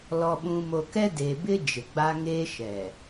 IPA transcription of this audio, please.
l ɔ˨ ɓ ũ˨ m o˨ k ɛ˦ d e˨ b ɪ˦ d͡ʒ ɪ˨ ɡ͡b a˦ ŋ eː˦ ʃ ɛ˨

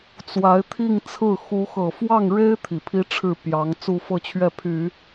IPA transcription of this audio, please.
t͡s w a˧˥ ɪ̯ t̪ʰ i˥˧ ŋ t͡sʰ ɹ̩˥˩ x u˧˥ x ɤ˨˩ f w ɑ˥˩ ŋ ɻ e˥ ɪ̯ t̪ʰ i˨˩ pʰ i˥ ʈ͡ʂʰ ɻ̩˥˩ p j ɑ˧˥ ŋ t͡s u˥˧ f ɤ˥˧ t͡ɕʰ ɥ ɛ˥˩ pʰ y˨˩˦

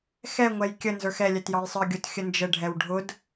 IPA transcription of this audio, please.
x ɛ ŋʷ ɛ j kʲ ə n z ə˞ x ɛ lʲ ɛ t j ɑ j sˤ ə˞ ɡʲ ʊ t xʲ ə n d͡ʒ ə ɖʱ ɛ w ɖʱ ʊ d

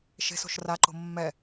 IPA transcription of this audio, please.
ʃ e̤ s o̤ ʃ r a ǃ o̤ mː ɛ

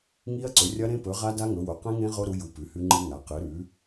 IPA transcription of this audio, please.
ŋ i˦˥ ɐ̯ ǀ ɵ˩˥ rʲ ɐ˦˥ ɾ ẽ˦˥ p ɵ˩˥ ʁ a˦˥ d a˦˥ ŋ ɵ˩˥ w o˩˥ q ẽ˦˥ ŋ ẽ˦˥ ʁ o˦˥ ɾ u˩˥ j u˩˥ p ʉ˩˥ h ʉ˦˥ ŋ͡ǃ ɨ˦˥ ŋ a˩˥ q ɨ˩˥ ɾ ʉ˩˥

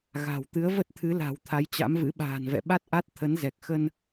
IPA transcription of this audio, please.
ɣ a̤˨˩ w t̪ ɨ˨˦ ə̯ v ə˦˥ t̚ t̪ʰ ɨ˨˦ l a̤˨˩ w t̪ʰ a˨˦ j t͡ɕ a̰˧˥ m v ɨ̰˧˥ ɓ a̤ː˨˩ n v ɛ̰˧˨ ɓ a˦˥ t̚ ʔ a˦˥ t̚ t̪ʰ ə˨˦ n z ɛ˨˩ k̚ x ə˧ n

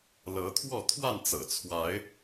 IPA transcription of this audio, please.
l ɤ˨˦ t̪ʰ w ɔ˥˨ t̪ʰ w a˥˨ n t͡s ɤ̰˨˩ t͡sʰ w a˨˦ ɪ̯

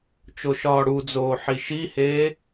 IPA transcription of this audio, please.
t͡ʃ o ʃ ɒː ɽ u d͡z oː ħ i ʃ i h eː

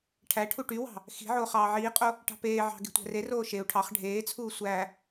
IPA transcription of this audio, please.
ʈʰ æ ʈʰ u ʈ y w ɑ̤ | x i̤ ʕ oː χ ɑː ʕ iː qʼ o | ʈ ɑ̤ p eː ʕ ɑ̤ ɡ e̤ tʷ æ̤ r e r oː ʃ e u̯ ʈʰ ɑ χ ɖʱ eː t͡sʰ uː sʷ æ

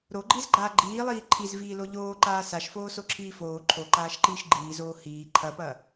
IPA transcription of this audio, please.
ɾ o ɡ͡ǃ i z ɡ͡ǃ aː ɡ͡ǃ iː lˠ iː ǃʰ i z v iː l o ʎ oː ǃ aː s a ʃ f oː s o ǁʰ iː f oː ǃʰ o ǃ aː ʃ ǃ iː ʃ ɡ͡ǃ iː z oː h iː ǃʰ ɐ p ɐ

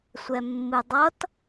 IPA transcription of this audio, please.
sʷ ɛ mː ɨ dˤ ʌ t

